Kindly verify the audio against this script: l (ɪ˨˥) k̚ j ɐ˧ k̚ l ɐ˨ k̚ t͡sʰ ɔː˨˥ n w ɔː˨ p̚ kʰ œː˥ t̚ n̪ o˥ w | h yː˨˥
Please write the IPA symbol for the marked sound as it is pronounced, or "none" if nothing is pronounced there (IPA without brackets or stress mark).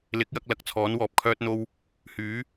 ɪ˨˥